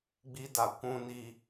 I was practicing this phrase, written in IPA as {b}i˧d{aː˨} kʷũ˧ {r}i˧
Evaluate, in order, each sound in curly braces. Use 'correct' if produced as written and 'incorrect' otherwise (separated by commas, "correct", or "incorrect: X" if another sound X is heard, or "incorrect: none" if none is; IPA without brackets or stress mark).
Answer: incorrect: ɡ͡b, incorrect: a˨, incorrect: n